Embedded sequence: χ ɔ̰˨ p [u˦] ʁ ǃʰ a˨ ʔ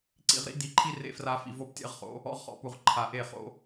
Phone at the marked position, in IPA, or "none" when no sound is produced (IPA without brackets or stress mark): u˨